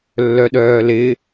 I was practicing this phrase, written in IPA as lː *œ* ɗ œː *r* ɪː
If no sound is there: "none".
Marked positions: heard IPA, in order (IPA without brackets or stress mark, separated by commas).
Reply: œ, l